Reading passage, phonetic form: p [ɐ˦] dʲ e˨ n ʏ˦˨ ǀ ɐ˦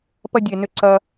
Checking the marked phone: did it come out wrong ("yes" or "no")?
no